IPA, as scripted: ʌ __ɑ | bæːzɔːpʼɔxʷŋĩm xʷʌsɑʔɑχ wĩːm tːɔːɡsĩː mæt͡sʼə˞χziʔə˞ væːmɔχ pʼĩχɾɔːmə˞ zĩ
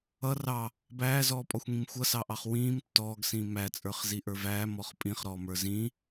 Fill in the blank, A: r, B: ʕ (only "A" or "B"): A